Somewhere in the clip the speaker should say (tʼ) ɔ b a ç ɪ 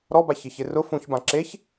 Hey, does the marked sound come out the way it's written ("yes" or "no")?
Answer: no